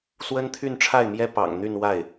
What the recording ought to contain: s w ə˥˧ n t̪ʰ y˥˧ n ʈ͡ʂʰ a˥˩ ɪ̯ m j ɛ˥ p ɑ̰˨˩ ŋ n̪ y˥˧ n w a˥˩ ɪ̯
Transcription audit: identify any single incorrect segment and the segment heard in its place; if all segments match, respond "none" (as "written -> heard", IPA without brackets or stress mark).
ə˥˧ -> ə˥